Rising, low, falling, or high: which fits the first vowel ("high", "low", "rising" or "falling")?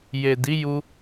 low